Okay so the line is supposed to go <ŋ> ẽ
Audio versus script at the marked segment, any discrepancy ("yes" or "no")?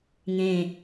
no